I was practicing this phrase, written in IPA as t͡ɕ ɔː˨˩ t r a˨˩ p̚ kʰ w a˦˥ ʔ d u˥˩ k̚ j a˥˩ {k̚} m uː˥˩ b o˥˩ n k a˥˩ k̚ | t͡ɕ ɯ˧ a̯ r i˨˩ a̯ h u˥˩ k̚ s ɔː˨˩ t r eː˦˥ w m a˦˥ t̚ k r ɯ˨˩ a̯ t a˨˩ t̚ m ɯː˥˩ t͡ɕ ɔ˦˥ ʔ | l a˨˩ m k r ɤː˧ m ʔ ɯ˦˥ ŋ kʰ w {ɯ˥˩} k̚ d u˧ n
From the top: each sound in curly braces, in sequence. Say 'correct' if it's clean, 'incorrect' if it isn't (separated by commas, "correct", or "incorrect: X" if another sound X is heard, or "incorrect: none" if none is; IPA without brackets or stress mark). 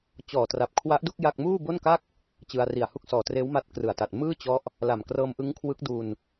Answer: correct, incorrect: ɯ˦˥